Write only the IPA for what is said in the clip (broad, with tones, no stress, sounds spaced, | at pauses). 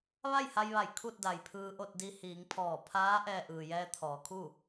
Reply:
ʋ a˥˨ j h a˧ j ʋ a˧˩ j kʰ u˥˨ t̚ d a˩ j pʰ ɯː˧ ʔ o˥˨ t̚ d i˧ h iː˩˧ ŋ pʰ ɔː˧˩ pʰ aː˧˥ ʔ ɛː˧ ʔ ɯː˩ j ɛː˧ t̪ʰ ɔː˩˧ kʰ u˥˨